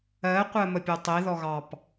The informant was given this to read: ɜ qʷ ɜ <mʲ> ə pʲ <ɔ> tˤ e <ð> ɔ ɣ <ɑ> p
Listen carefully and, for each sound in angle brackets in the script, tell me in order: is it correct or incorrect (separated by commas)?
incorrect, incorrect, correct, correct